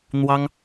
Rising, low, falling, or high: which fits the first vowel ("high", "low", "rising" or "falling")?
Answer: high